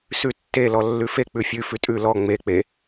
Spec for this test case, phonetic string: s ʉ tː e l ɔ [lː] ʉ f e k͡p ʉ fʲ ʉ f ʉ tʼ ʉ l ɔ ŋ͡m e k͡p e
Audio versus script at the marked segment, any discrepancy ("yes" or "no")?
no